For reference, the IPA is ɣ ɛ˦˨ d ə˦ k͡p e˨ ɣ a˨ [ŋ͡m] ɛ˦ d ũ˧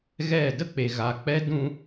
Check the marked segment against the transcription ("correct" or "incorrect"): incorrect